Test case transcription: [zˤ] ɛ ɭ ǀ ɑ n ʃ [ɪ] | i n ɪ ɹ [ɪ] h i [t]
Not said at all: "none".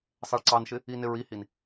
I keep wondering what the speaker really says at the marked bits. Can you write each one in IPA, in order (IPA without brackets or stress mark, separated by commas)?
sˤ, ɪ, i, n